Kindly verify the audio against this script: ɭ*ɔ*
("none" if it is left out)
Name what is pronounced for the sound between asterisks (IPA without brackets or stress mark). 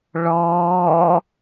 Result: ɔː